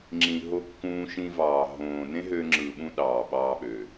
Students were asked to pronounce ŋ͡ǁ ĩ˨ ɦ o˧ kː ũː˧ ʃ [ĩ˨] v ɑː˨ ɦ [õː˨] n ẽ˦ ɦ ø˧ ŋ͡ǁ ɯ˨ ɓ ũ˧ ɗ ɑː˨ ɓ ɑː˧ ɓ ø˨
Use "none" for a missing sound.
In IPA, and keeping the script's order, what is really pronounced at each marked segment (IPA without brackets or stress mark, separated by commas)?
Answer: ĩ˧, õː˨